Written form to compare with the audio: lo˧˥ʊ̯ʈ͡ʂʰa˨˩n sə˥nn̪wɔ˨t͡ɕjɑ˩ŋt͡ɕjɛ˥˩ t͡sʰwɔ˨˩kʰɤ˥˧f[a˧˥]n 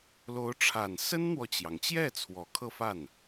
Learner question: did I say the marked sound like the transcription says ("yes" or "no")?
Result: no